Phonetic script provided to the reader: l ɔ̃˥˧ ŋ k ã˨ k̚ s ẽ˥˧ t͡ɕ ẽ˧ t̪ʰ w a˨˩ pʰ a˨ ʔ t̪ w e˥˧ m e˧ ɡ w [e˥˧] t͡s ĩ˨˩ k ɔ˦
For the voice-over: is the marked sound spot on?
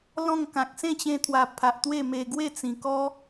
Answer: yes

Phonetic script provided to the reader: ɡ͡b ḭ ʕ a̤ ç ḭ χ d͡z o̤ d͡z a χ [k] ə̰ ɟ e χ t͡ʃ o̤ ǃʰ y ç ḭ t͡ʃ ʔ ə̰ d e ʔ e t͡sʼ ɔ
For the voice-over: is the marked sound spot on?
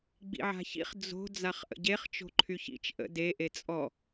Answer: no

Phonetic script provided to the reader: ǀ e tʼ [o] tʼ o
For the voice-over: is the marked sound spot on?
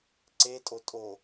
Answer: yes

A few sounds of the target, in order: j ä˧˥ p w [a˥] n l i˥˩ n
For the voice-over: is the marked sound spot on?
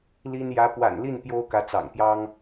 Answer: no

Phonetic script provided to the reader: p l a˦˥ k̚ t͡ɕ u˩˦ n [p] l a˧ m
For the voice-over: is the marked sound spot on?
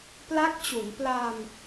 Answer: yes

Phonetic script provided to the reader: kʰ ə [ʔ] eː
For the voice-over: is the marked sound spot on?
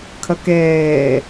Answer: no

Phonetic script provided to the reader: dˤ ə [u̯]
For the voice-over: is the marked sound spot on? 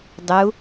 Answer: yes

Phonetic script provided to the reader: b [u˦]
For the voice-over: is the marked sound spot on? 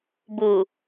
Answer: no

